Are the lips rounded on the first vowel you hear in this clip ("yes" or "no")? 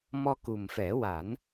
yes